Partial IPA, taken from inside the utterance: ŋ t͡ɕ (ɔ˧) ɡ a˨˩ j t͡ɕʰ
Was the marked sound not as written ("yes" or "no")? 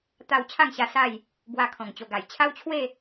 yes